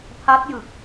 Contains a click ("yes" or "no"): no